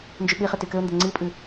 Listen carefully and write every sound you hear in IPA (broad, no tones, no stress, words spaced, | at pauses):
nd͡ʒyɓiχɘ tykɘʊ̯ndɘ ŋ͡ǀipʼɨ